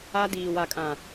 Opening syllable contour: high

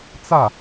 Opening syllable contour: falling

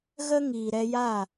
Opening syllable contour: high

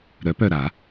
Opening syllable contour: rising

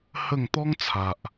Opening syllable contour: falling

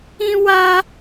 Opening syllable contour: high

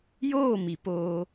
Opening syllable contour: falling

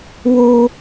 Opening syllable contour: high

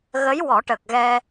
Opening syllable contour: rising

